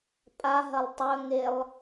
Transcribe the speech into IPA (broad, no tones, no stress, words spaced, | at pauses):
pʼaɦɐlˠ tˤɵŋelˠ